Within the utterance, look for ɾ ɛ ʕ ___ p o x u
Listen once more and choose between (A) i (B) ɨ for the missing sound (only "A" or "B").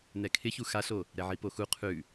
A